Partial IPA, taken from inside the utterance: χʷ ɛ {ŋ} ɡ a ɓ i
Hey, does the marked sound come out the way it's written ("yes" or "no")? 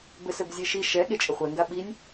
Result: yes